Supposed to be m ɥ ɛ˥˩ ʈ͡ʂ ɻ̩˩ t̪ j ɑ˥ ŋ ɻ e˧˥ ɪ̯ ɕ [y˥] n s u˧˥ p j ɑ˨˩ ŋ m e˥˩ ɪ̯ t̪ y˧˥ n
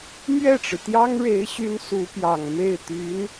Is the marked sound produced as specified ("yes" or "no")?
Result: yes